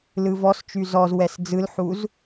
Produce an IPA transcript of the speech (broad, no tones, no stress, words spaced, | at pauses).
lɯvɔst͡ʃy zɔz wɛsd͡zɯlħuz